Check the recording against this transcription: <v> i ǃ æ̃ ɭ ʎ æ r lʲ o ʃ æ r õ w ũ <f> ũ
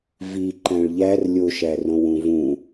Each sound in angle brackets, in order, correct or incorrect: correct, incorrect

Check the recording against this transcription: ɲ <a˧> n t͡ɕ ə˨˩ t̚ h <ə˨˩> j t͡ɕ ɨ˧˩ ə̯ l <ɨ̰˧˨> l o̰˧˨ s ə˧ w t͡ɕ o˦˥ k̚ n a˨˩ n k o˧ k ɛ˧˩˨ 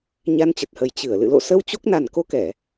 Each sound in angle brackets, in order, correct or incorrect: correct, correct, correct

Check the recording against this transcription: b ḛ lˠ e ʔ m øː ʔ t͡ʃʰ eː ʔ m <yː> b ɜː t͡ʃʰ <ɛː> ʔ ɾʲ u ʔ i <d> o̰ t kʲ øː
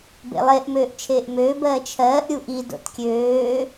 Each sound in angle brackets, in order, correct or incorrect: incorrect, incorrect, correct

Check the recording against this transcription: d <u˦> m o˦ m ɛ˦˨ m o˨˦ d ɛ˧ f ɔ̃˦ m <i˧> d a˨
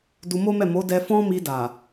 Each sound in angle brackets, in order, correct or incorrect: incorrect, correct

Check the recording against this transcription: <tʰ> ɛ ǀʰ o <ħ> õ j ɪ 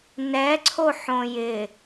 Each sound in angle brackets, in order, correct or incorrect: incorrect, correct

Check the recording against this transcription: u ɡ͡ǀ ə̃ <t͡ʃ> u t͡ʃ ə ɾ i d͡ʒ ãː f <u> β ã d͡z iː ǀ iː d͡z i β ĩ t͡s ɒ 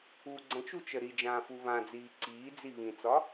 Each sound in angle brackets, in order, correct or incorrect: correct, correct

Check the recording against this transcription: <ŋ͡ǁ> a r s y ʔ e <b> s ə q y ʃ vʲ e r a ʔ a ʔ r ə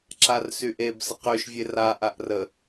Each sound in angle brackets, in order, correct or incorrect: incorrect, correct

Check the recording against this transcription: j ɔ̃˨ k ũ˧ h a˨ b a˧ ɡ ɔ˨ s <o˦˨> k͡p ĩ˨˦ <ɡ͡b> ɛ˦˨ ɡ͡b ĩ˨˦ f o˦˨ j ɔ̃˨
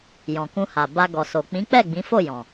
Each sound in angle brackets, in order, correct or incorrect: incorrect, incorrect

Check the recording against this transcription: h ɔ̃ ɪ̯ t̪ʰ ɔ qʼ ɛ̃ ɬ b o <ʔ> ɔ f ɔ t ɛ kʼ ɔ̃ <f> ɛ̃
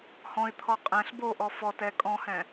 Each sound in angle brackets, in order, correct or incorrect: correct, incorrect

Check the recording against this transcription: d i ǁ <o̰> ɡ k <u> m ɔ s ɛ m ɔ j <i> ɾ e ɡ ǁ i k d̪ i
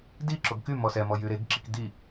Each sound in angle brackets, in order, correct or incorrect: incorrect, incorrect, incorrect

